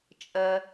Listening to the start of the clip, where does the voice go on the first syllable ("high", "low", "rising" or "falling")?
low